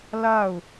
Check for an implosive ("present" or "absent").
absent